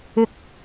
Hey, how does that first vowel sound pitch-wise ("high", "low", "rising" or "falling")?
high